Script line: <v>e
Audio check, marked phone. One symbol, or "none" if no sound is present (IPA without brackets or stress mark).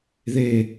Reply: ð